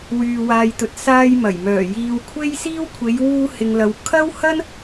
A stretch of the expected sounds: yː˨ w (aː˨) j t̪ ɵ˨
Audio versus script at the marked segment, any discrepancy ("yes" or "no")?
no